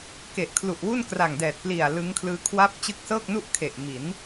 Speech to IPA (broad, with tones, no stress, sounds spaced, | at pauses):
k e˨˩ ʔ kʰ l u˨˩ ʔ w u˥˩ n k r a˨˩ ŋ d ɛː˨˩ t̚ p l i˨˩ a̯ l ɯ˦˥ ŋ kʰ l ɯː˦˥ kʰ w a˥˩ p̚ t͡ɕ ɯ˦˥ k̚ s ɤː˥˩ k̚ n u˥˩ ʔ kʰ e˨˩ ʔ m i˩˦ n